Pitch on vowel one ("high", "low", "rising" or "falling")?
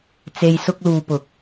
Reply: low